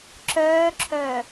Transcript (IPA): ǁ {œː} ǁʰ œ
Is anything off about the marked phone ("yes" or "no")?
no